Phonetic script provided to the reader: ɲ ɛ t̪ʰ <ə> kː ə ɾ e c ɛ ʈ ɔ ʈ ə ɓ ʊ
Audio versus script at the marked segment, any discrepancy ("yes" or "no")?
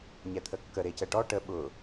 no